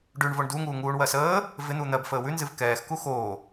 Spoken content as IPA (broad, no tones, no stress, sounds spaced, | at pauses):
ɖ ʉ ɳ v o ɳ d u ŋ uː ŋ uː ɳ w ɜ s əː | v ɪ n̪ u n̪ ɜ b f əː w ʉ n z ɨ v k ɛː x k u x oː